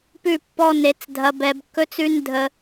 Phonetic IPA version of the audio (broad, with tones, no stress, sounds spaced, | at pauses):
p ʉ˦˨ pː ɔ˦ n e˧ t͡s dʱ ɐ˧ b ɛ˧ b kː ɵ˦ t͡s ʉ˦ n dʱ ə˦